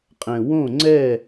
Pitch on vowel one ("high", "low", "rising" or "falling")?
low